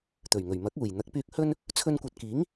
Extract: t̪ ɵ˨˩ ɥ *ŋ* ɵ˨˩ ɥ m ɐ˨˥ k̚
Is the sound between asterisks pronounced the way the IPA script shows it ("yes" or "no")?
yes